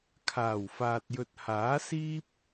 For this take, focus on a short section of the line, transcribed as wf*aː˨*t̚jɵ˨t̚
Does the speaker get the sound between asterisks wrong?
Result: no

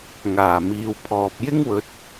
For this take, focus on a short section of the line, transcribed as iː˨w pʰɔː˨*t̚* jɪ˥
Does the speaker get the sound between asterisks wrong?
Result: yes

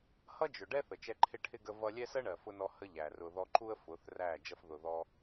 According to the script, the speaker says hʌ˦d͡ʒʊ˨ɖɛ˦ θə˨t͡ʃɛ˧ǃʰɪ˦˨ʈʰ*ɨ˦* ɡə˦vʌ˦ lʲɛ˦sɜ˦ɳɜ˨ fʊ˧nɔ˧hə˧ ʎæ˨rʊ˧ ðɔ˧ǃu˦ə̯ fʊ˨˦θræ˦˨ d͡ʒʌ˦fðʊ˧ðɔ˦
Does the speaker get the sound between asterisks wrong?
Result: yes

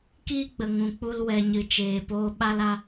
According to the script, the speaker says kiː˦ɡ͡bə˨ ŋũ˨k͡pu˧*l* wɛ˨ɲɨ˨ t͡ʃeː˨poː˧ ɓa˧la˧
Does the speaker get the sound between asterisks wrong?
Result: no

